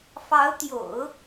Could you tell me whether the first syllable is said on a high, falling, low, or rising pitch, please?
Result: rising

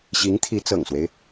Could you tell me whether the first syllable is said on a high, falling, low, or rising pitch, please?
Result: rising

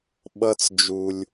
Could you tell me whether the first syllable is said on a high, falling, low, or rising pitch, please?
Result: high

